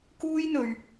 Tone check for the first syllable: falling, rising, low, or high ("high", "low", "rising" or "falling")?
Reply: high